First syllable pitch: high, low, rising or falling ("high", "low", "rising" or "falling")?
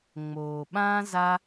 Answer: low